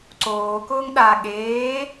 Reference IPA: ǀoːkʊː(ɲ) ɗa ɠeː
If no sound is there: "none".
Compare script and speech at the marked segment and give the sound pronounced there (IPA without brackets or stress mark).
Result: ŋ